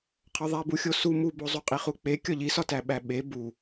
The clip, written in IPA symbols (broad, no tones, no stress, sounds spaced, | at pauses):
qʰ ɒ ðˤ æ b u xʲ o s u m u b o zˤ u qʼ i χ u k͡p e kʲ ɒ ʎ i s ɒ t æ ɓ æ ɓ e b u